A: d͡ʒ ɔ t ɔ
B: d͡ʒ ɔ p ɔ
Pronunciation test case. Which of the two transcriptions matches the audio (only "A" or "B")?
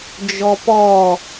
B